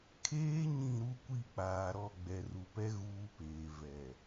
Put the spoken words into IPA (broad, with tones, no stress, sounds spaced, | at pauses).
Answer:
kʰ eː˦ ɲ ĩ˦˨ ɾ u˦ kʷ i˦˨ k͡p aː˨ ɾ ɔ˦˨ ɡ͡b ɛ˨ r u˨ p ɛ˦ ɣ uː˦ p eː˨ v ɛ˨